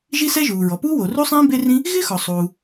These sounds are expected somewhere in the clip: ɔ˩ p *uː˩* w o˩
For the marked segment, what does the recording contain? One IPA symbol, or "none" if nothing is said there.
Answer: uː˥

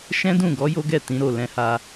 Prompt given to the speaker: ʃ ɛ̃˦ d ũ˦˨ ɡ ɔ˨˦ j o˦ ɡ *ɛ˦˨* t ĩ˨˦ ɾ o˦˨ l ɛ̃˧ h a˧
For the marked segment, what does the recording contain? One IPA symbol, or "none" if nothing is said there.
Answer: ɛ˦˨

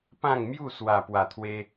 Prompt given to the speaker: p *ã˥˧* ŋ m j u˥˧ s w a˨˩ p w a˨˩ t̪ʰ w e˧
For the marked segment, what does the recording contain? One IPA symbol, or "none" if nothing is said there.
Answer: ã˥˧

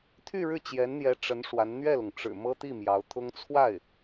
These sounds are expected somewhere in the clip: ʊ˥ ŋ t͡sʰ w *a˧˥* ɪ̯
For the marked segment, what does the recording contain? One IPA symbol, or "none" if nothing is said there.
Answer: a˥˩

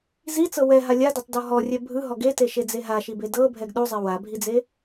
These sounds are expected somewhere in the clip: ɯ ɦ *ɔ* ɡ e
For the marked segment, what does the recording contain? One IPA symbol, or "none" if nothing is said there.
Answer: ɔ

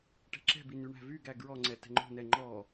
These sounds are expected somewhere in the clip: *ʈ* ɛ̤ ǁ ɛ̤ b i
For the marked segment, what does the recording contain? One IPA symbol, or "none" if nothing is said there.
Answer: ʈ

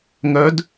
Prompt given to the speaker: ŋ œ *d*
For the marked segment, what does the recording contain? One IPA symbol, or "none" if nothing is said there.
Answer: d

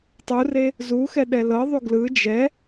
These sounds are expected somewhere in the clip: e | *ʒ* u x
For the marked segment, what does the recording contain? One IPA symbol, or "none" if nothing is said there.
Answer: z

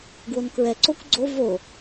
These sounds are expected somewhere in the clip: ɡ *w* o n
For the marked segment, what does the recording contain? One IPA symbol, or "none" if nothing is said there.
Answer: w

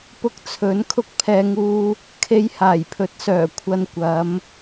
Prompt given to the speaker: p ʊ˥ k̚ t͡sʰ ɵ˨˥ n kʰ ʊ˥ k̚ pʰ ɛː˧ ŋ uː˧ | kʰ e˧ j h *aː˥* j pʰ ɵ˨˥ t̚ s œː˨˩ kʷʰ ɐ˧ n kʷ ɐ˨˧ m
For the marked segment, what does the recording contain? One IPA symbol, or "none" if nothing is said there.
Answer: aː˨˩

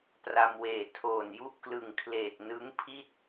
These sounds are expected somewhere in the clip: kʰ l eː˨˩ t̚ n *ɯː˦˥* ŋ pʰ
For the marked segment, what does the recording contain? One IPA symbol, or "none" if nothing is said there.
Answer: ɯ˦˥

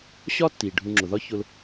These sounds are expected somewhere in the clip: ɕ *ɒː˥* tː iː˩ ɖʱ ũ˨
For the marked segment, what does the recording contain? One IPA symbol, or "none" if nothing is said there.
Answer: ɒː˥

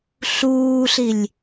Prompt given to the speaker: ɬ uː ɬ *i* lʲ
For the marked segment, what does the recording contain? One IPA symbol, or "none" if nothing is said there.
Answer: i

